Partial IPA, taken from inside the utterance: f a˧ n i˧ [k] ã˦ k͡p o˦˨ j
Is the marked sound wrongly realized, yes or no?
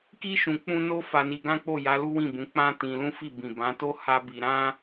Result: yes